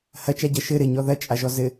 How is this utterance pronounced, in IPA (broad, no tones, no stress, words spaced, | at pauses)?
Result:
hɐt͡ʃaɟɐ ʃɘ ɾɘɲɔ ðɐt͡ʃʼaʒɔ zɘ